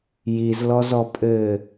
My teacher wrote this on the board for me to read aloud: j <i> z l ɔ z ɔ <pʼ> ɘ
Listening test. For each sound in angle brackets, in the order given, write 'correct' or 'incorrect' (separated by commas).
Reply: correct, correct